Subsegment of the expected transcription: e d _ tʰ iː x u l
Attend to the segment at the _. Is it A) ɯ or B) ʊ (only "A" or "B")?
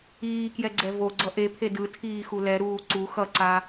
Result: A